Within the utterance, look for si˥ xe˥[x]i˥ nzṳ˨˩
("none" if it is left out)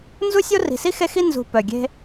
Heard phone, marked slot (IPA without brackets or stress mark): x